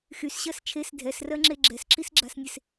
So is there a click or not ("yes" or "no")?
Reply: yes